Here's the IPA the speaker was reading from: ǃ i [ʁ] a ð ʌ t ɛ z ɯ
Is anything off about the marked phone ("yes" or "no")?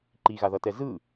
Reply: yes